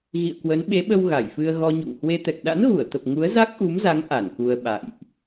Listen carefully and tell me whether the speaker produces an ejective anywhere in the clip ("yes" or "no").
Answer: no